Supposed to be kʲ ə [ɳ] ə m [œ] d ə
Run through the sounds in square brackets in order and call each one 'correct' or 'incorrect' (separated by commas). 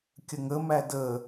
incorrect, incorrect